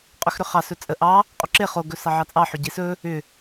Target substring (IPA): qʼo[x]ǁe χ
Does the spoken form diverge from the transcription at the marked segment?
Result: yes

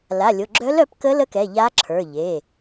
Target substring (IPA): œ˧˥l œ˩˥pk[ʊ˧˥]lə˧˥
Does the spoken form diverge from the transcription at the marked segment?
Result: yes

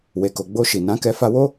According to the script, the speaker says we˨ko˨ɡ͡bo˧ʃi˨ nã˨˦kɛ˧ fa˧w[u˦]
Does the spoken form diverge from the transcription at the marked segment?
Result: yes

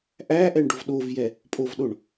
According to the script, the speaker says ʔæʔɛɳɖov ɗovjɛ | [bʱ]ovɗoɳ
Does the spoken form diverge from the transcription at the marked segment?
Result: yes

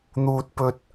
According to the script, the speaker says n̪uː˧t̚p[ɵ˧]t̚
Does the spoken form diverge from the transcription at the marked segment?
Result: no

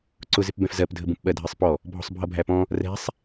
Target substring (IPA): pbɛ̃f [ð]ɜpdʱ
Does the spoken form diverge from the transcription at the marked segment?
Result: yes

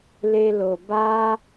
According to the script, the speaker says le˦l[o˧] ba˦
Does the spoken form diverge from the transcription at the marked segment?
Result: no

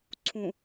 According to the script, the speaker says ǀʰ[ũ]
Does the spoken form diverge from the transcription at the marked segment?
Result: no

